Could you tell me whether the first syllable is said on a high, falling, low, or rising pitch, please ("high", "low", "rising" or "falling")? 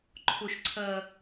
low